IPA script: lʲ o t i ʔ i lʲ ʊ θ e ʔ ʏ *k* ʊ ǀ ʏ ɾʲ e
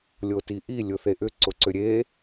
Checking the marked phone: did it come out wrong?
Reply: yes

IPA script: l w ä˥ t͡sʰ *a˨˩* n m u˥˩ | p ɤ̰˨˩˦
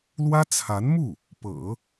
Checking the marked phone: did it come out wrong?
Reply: yes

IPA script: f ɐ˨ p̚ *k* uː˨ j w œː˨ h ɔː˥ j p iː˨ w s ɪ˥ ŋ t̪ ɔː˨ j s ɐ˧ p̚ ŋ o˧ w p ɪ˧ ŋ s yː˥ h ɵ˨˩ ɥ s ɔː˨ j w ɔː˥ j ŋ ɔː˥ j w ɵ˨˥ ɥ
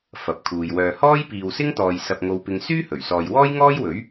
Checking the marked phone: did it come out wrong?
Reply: yes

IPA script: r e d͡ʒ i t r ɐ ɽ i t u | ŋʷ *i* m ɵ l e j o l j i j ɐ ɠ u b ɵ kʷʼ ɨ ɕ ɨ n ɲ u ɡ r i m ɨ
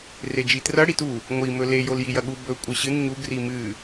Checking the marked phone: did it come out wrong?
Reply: no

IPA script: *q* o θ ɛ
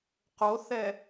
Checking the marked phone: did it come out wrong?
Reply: no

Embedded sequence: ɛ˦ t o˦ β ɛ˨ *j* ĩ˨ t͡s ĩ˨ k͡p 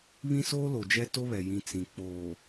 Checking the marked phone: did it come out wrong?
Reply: no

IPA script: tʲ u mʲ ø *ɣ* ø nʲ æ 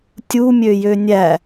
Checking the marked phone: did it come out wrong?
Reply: yes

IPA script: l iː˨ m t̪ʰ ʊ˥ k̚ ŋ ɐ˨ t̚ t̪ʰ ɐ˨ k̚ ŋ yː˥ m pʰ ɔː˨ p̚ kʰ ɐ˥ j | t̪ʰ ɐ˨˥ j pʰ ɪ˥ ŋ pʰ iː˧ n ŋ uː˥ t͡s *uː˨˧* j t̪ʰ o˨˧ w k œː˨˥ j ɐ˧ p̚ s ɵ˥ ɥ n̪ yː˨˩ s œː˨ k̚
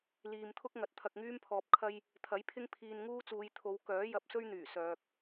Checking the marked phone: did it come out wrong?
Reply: no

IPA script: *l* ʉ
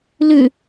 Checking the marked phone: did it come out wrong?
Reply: no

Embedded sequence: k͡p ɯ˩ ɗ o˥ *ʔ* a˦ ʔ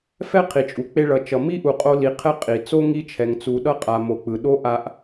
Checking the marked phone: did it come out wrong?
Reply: no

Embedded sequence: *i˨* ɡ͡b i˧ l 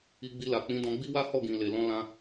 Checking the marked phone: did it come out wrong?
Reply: yes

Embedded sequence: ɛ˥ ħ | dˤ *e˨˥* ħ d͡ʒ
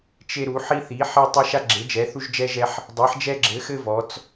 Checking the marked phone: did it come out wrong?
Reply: yes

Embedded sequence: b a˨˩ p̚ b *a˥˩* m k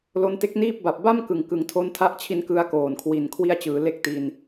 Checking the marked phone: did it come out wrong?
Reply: no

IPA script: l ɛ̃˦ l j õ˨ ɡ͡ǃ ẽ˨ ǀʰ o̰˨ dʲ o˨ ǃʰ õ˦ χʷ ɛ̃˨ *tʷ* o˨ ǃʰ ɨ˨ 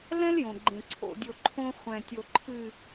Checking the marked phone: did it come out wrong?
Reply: yes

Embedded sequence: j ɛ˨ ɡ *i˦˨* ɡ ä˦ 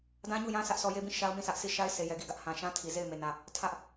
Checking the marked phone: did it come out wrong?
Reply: no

